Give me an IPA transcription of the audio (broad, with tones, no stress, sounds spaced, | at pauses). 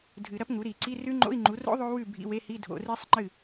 dʱ ɨ˨˩˦ ɾ ɐ˦˥ p ŋ u˩˥ ɾ i˨˩˦ ǀ i˧˥˧ r ʉ˦˥ ŋ͡ǃ o̰˧˥˧ i̯ ŋ͡ǃ u˩˥ r o̰˦˥ ðˤ o˦˥ w ʉ˥˩ bʱ ḭ˧˥˧ w e˧˥˧ h i˧˥˧ dʱ o̰˨˩˦ r i˦˥ sˤ ŋ͡ǃ ɨ˥˩